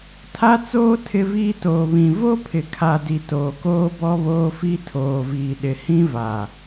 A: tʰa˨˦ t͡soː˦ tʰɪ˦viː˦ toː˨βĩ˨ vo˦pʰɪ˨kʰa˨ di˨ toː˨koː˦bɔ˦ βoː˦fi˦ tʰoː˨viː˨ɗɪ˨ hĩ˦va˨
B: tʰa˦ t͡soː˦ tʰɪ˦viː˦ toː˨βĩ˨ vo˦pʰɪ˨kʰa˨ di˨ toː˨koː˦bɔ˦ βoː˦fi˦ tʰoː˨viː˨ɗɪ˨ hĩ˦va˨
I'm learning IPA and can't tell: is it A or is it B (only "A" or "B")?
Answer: B